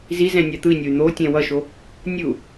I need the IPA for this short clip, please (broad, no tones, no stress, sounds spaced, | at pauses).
z i z ɛ̃ nʲ a t̪ ɯ i̯ nʲ o y̯ n̪ o tʲ ɛ̃ w ʌ ʃ o | nʲ ɯ u̯